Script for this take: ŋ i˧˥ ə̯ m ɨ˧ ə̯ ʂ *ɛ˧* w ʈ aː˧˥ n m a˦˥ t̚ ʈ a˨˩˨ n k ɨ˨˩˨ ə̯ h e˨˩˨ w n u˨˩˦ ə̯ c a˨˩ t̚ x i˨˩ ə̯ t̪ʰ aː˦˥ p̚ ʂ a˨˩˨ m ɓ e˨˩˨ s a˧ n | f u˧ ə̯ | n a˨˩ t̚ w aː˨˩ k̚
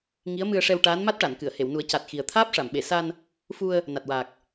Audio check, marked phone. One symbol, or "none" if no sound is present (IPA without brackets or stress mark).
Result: ɛ˧